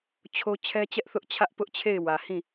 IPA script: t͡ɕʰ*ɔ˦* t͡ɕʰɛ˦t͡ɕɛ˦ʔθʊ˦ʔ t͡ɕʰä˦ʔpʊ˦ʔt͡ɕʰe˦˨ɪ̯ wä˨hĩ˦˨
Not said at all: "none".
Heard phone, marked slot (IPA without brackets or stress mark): o˦